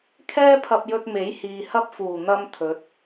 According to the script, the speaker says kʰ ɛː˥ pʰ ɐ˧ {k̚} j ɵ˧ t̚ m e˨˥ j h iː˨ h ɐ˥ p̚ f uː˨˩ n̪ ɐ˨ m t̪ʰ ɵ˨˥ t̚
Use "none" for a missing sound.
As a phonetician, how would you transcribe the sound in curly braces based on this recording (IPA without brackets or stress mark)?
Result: p̚